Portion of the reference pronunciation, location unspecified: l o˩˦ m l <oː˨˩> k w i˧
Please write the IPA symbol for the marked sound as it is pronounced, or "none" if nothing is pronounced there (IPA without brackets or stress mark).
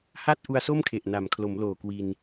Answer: oː˨˩